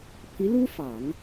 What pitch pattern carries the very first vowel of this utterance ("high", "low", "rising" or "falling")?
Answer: rising